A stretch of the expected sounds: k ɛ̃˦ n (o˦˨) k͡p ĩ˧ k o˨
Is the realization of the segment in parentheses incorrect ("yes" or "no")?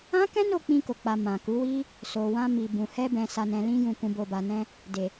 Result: no